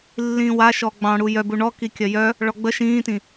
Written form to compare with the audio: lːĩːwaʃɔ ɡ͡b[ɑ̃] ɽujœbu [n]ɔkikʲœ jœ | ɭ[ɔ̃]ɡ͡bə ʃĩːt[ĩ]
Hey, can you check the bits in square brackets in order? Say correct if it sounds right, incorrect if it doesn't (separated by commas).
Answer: correct, incorrect, incorrect, correct